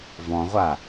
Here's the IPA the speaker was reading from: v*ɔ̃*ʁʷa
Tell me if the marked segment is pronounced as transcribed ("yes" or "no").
yes